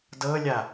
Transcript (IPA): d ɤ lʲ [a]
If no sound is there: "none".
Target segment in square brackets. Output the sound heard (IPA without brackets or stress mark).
a